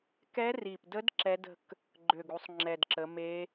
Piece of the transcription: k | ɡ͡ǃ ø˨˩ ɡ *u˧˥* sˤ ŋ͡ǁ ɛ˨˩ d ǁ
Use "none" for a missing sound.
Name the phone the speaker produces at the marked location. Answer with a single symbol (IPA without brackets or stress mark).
u˩˧